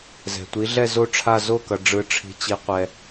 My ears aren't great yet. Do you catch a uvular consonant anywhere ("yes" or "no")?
yes